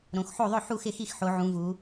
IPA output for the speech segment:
ɾõ˩˧xħo˥˩ ðˤʊ˥˩ ħu˥˩xɪ˥˩xi˥˩xħo˩˧ ʕũ˩˧vu˩˧

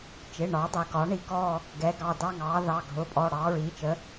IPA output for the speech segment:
t͡ʃɪ˩˧˩ ɳɒː˩˥dˤæ˩˧˩kɒː˩˥ ɳi˩˥kɔː˦˨ | ɡɛ˩˥ ɡɑ˩˧˩dɑ˦˨ŋɑː˩˥ðɑ˩˧˩ ɡʱʊː˩˧˩pʼɔ˩˧˩ɽɑː˩˥ ɹiː˩˥t͡ʃə˩˥

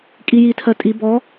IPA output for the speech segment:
kʼijitʰɜ tʼi bɔ

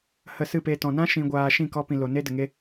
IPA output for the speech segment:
hə˧sɨ˦˨pe˧tɔ̃˨ nã˦ ʃĩ˧ɡʷaː˧ ʃĩ˦˨kɔ˧pĩ˨ lo˨ ne˦ də˨ŋe˦

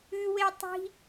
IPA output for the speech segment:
ʉwe tˤi̤

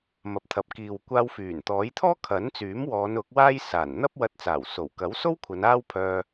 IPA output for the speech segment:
mɐ˨p̚t̪ʰɐ˨p̚kiː˨wkʷaː˧w fyː˨˩nt̪ɔː˨˥j t̪ʰɔː˥kʰɐ˨˥nt͡syː˨˥mwɔː˨˧n ʊ˨˥k̚waː˥jsaː˨˩n n̪ɐ˥p̚ wɐ˧t̚t͡saː˨˩wso˨˩w kɐ˨˥wso˥wkʷʰɐ˨˧n aː˥wpʰœː˧

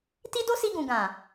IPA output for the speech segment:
ti˦do˦si˧ɡũ˨ ɡã˨

